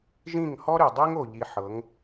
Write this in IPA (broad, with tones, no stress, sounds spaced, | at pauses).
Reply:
ʒ ĩ˦˨ ŋ h ɔ˦ ɾ y˨ dˤ i˦ ŋ o˨ ʎ i˧ ħ ɤ˨˦ ŋ